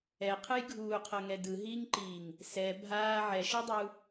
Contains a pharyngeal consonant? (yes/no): yes